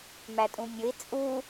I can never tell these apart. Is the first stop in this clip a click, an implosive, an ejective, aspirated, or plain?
ejective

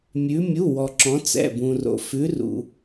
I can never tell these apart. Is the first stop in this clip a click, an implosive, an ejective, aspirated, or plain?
click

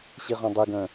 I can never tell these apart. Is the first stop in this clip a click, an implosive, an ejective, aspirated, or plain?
plain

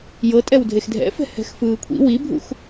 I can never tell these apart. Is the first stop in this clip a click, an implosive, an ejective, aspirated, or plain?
ejective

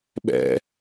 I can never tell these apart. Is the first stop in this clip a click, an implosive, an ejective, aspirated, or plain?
implosive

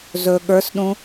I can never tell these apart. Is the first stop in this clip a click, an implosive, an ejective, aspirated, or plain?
implosive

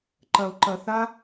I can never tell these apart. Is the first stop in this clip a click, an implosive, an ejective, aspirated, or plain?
click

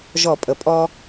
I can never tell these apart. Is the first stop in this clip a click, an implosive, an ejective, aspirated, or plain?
ejective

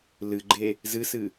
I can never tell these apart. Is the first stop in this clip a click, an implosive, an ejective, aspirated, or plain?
click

